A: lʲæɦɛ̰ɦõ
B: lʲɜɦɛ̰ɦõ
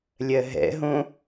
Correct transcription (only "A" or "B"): B